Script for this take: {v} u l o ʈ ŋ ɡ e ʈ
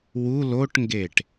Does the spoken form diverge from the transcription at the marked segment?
yes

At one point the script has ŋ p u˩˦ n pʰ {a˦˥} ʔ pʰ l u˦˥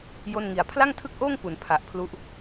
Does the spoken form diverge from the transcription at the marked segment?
yes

